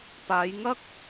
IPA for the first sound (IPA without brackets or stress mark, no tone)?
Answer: p